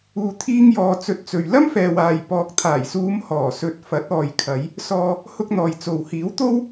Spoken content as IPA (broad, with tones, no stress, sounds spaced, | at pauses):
uː˧ t̪ʰ iː˥ ŋ j ɔː˧ t͡s ɵ˧ t̚ t͡s ɵ˨ ɥ l ɐ˥ m f ɛː˨ w aː˨ j p ɔː˨ k̚ t̪ʰ aː˨˩ j s uː˨˧ m h ɔː˨˩ s ɵ˨ t̚ f ɐ˨˥ t̚ ɔː˨ j kʰ ɐ˨˧ j | s ɔː˧ | h ʊ˥ k̚ n̪ ɔː˨ j t͡s o˨ w h iː˨˥ w t̪ o˥ w